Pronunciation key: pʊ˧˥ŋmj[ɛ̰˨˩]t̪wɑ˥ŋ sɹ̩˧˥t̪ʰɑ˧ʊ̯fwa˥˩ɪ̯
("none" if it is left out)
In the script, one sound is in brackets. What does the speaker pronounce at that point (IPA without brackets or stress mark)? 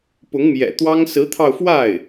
ɛ̰˨˩